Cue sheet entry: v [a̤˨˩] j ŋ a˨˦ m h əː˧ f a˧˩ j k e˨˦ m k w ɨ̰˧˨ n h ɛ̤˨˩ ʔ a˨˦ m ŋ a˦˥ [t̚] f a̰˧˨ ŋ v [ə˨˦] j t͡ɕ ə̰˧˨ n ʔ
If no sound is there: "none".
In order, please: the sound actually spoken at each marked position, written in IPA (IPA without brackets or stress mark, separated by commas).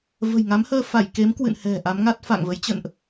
ə̤˨˩, t̚, ə˨˦